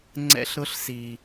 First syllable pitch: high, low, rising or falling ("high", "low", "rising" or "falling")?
high